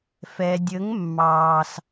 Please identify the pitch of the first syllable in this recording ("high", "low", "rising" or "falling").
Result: low